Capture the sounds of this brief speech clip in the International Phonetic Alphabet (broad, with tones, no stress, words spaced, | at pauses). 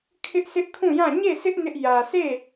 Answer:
kʰɪ˦ʔsʰɪ˦ʔkʰũ˦˨jã˦˨ ɲe˦˨sɪ˦ʔ nɪ˦ʔ jä˨se˦˨